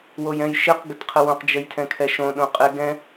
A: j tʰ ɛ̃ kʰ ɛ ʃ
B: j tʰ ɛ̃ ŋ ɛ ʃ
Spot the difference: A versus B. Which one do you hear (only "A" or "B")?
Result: A